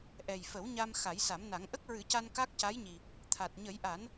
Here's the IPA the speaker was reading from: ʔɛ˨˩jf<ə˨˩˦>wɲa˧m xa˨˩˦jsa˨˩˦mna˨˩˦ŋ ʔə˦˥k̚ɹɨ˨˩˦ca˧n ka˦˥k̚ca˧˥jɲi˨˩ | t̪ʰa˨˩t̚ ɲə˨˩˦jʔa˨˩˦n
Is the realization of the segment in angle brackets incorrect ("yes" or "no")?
no